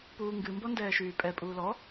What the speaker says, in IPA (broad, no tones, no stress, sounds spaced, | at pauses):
p uː ŋ ɡ ɨ m b ɔ n d ɛː ʃ yː pʼ ɛ pʼ uː l ɔ